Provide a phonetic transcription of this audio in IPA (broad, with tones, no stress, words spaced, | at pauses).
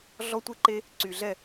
ɮɔ˦tʷe˦ǃe˦ | ǀy˨ɮɛ˦˨